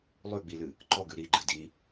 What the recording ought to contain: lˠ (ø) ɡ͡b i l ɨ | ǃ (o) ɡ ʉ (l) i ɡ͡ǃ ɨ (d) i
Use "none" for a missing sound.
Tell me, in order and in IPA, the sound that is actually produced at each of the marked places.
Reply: ʉ, ɔ, ɾ, d

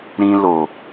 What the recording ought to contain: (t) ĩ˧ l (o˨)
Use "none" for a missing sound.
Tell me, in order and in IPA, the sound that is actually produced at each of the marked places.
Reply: ɾ, o˨

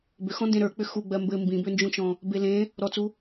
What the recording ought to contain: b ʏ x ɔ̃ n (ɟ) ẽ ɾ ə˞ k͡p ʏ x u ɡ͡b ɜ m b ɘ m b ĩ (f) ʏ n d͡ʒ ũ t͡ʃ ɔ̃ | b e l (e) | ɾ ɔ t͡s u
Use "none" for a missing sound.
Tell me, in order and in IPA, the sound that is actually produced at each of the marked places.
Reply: d, b, ẽ

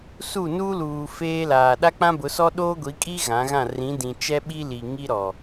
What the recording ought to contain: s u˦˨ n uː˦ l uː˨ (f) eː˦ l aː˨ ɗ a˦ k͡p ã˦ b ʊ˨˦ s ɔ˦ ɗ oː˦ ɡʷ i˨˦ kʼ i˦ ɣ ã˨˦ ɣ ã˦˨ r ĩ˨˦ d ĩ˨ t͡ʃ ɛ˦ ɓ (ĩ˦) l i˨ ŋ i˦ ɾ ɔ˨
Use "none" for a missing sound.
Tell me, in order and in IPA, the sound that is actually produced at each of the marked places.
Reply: f, i˦

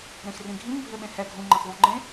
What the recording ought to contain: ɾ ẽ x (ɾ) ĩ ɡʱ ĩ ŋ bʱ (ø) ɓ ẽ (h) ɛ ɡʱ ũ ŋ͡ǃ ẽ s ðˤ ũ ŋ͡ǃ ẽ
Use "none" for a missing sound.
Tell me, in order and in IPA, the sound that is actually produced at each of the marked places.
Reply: r, ø, h

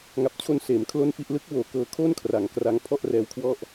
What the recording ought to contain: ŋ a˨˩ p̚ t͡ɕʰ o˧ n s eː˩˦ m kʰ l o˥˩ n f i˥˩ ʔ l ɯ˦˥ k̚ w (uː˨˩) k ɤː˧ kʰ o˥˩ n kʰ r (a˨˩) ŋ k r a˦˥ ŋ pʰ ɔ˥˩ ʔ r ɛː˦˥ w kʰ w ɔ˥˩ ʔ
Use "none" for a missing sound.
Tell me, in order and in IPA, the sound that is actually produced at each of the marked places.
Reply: oː˨˩, a˩˦

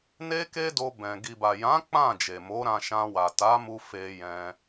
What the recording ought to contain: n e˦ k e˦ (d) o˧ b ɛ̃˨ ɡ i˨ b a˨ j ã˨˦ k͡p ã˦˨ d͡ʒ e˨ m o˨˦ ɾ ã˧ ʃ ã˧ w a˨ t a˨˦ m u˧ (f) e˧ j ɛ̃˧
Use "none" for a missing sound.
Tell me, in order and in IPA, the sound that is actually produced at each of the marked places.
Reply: d, f

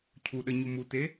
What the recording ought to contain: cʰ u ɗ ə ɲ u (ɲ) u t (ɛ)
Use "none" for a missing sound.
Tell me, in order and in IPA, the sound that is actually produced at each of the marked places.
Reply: m, e

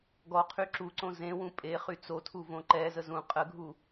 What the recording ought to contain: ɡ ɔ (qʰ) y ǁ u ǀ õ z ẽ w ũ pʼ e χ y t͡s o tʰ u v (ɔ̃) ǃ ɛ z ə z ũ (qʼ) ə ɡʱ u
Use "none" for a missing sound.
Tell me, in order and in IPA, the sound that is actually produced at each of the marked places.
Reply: qʰ, õ, qʼ

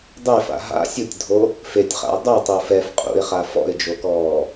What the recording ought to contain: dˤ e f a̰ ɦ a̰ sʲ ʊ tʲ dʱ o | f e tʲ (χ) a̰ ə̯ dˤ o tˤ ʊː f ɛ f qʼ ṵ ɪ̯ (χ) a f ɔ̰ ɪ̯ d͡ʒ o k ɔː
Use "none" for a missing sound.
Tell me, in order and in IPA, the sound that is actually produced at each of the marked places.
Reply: χ, χ

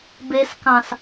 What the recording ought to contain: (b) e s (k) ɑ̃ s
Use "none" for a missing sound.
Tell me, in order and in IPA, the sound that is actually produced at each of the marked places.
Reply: b, k

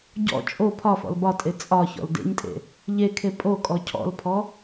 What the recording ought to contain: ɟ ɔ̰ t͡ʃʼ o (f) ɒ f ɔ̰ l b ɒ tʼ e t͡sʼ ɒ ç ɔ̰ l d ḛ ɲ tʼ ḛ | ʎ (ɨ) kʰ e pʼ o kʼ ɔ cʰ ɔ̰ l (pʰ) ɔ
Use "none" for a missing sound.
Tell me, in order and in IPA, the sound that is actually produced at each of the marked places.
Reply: pʰ, e, pʰ

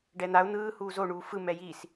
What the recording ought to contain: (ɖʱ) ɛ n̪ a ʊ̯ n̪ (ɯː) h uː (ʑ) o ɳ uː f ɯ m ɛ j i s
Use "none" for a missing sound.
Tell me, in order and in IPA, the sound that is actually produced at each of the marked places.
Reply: ɖ, ɯː, z

